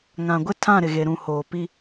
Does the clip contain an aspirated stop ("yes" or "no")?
yes